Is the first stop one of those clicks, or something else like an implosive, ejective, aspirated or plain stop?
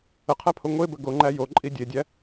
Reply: aspirated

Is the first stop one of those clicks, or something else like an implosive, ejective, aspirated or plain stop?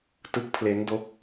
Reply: plain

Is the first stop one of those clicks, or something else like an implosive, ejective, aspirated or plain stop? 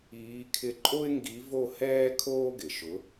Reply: aspirated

